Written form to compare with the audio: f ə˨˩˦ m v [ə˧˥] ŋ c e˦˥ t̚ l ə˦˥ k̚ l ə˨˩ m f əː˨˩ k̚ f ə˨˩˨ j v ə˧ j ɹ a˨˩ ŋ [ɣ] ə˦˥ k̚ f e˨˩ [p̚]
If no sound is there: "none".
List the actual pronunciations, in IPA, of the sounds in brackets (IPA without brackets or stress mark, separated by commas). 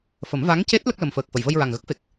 a˧˥, ɣ, k̚